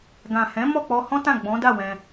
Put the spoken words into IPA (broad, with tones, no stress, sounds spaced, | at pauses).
ɡ ã˨ h ɛ̃˨˦ m ɔ˦˨ k͡p ɔ˧ h ɔ̃˦ t ã˦˨ ɡ͡b ɔ̃˨˦ d a˦˨ w ɛ̃˧